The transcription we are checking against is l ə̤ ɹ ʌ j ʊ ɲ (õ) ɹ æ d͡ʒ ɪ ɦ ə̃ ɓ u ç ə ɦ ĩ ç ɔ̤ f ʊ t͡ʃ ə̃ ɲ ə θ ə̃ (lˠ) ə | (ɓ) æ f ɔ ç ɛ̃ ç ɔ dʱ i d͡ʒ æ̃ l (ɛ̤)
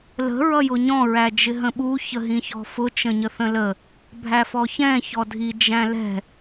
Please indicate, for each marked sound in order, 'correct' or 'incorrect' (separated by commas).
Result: incorrect, incorrect, incorrect, correct